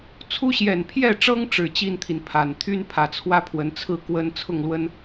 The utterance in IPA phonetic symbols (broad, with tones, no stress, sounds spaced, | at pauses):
t͡sʰ u˦ ɕ j ɛ˨˩ n pʰ j ɛ˥˨ ʈ͡ʂ ɤ˦ ŋ ʈ͡ʂ ɻ̩˨˩ t͡ɕ i˥˨ n t̪ʰ i˩ n pʰ a˨˩ n t̪ʰ y˦ n pʰ ä˨˩ t͡sʰ w ä˦ pʰ w ə˨˦ n t͡sʰ ɹ̩˥˨ k w ə˦ n t͡sʰ ʊ˥˨ ŋ l w ə˦ n